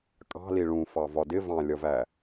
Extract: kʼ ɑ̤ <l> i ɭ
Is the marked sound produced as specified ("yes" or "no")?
yes